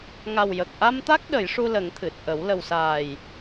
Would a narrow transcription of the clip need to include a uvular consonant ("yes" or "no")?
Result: no